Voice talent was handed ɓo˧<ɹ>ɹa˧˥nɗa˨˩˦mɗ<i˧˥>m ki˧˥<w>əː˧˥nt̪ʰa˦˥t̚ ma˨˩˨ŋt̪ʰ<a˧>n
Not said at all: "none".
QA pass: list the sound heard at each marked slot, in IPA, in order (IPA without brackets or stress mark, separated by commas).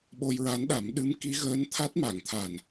j, ɨ˧˥, ɣ, a˨˩